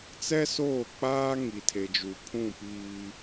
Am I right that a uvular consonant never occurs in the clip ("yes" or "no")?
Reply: yes